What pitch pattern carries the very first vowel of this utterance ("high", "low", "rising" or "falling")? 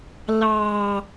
low